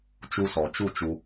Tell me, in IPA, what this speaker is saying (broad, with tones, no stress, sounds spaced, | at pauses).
t͡ʃ u˧ s ɔ˨ t͡ʃ u˦˨ t͡ʃ u˧